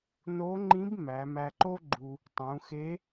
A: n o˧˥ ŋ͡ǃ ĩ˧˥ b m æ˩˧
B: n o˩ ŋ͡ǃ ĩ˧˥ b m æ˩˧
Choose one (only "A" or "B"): A